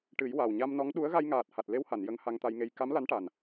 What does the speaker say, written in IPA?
ʈɨ˨˩˦j wa˨˩w ɲa˧mnɔ˧˥ŋ ɗu˧˥ə̯ɣa˧j ŋaː˨˩t̚ ha˨˩t̚le˧wha˨˩˨n jə˧˥ŋha˧ŋt̪a˧jŋe˧j ka˧˥mla˧˥nʈa˨˩n

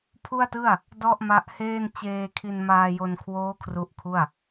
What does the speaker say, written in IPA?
pʰu˥˩a̯tɯ˥˩a̯ | dɔ˥˩ʔma˦˥ʔheː˥˩n t͡ɕeː˧kʰi˧nmaː˧jo˧n kʰwoː˦˥ kʰru˦˥ʔkʰu˥˩a̯

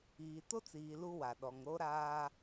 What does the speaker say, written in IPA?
iː˨to˦t͡siː˨ lu˦wa˨ɗɔ˨ŋ ɾo˦ɾaː˦

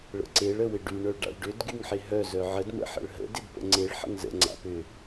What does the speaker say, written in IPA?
ɭə̰ǀeɭ əwɪɖy ɳœɭɖa̰ɭɖʏd ɡyŋħɪɦœ zœʕəd mə̰ħə̰ɭɦə̰ dɪdpə̰ŋ͡ǀeɭ ħə̰ŋzə̰ ŋ͡ǀa̰pʏ

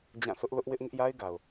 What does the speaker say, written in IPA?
d͡ʑã˦˨ sʊ˦ʔlʊ˦ʔwɪ˦ʔ ŋɪ˦ʔja˦ɪ̯ɡa˨ʊ̯

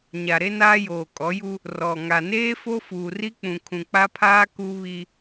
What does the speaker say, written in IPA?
ɲa˨ɾe˦naː˦joː˨ kʼɔ˨˦ju˦ | rɔ˨ ŋa˨neː˦ fo˦fuː˨ri˦k͡pũ˨ kʰũ˨k͡pa˦pʰaː˦ ku˦ βi˦

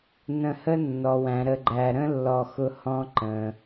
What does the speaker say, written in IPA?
nə̃˨hə˦ nːɔ˩wæ̃˩ɾə˨ɡ͡ǃæ˨ ɾə̃˥lːɔ˨ xʊ˦hɔ̃˦ ǃə̃˩

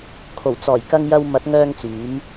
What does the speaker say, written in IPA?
kʰo˨˩wt͡sɔː˨˩j kɐ˨ŋjɐ˨w mɐ˨˥t̚ŋœː˧ŋt͡syː˨˧m

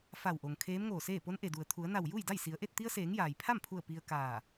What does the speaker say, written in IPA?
fa˧˩wʔo˩ŋ kʰeː˧˥mŋoː˧˩seː˥˨ po˧˥nʔe˩du˩ə̯ t̪ʰu˩˧ə̯na˧˩w ju˥˨jda˥˨j si˩˧ə̯ʔe˥˨t̚ t̪i˧ə̯seː˩˧ŋ jaː˩jpʰa˥˨mpʰu˧˩ə̯ pi˧ə̯kaː˧˩

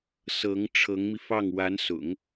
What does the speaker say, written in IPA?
sɤ˧˥ŋ ʈ͡ʂʰɤ˧˥ŋmi˧fɑ˥˩ŋ wa˧˥nsʊ̰˨˩˦ŋ

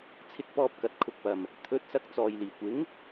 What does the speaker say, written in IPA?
t͡sʰɪ˧k̚pɔː˧p̚ kɐ˨˥t̚kʰʊ˧k̚pɐ˨m | t̪ʰɵ˨˥t̚sɐ˧k̚ t͡sɔː˨jliː˨˩kʷɪ˨˥ŋ

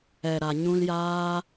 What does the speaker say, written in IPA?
ɛ˨ɾa˨ ɲũ˧ljaː˦

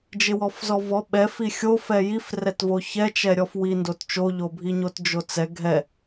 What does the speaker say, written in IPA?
d͡ʒɪwɔfzɔvɔ ɓɛfi xʲo fɛjif rɛtvoçɛt͡ʃɛ ɾʲɔfwi ndott͡ʃoʎobʱi ɲotd͡ʒot͡sɛ ɡʱɛ

